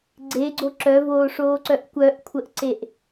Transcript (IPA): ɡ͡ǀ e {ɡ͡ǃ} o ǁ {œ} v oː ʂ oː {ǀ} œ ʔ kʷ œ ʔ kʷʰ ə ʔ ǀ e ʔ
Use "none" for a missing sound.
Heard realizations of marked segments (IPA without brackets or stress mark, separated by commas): ɡ͡ǀ, œ, ǀ